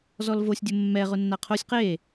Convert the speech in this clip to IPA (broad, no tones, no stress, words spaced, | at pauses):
zɔlvosʲdʲʊ mːɛʁʊ nːaqʰosʲ qe